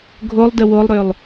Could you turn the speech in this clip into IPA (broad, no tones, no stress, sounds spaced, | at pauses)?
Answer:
ɡʱ o lˠ d ə w o lˠ ɾ ø lˠ